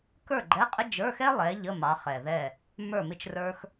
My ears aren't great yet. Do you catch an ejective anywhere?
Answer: yes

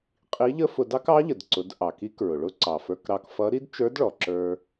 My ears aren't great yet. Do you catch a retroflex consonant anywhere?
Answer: yes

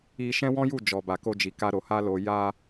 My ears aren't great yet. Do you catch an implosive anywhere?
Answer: no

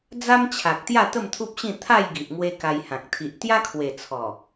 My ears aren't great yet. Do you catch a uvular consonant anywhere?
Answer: no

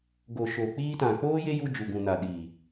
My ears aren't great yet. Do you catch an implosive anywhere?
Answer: yes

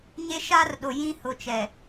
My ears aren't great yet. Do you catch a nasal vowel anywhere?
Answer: yes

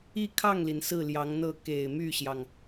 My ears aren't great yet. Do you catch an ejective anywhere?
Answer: no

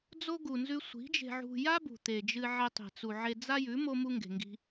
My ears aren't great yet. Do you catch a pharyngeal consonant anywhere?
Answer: yes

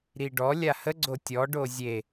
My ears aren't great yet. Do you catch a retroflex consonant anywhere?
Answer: yes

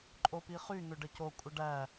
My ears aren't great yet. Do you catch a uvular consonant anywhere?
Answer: yes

